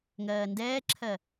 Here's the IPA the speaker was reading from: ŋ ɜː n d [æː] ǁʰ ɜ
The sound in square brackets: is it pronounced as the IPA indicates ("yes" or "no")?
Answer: no